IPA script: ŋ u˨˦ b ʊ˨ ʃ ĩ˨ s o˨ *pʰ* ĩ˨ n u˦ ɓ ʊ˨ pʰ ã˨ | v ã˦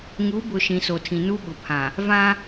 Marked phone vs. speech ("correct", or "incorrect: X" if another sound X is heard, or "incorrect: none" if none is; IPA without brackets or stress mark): incorrect: tʰ